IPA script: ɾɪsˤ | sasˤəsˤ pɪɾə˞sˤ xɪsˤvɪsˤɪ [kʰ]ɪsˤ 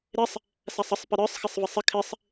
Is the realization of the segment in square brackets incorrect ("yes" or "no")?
no